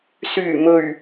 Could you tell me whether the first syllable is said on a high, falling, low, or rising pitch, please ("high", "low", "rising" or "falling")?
low